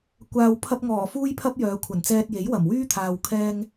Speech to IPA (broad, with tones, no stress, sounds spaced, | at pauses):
kʷ aː˨ w pʰ ɐ˧ p̚ ŋ ɔː˨˩ f uː˥ j pʰ ɐ˥ p̚ j œː˨˧ kʷʰ ɐ˨˩ n t͡s ɛː˧ t̚ j e˨˥ j w ɐ˨˩ m w yː˥ t̪ʰ aː˨ w kʰ ɛː˧ ŋ